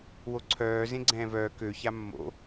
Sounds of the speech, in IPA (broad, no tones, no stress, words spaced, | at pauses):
woǀʰœː zẽɡ͡ǀɛ̃ːvœː kø çamːo̰